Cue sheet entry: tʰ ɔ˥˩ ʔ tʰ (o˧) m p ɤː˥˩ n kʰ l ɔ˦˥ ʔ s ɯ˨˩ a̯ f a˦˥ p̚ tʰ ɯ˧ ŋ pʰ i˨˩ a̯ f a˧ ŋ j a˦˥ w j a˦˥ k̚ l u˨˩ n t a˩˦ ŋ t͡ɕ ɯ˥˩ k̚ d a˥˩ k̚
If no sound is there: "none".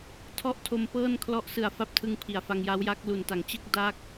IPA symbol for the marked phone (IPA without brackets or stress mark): o˧